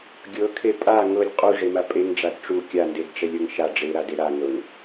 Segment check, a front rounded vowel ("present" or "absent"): absent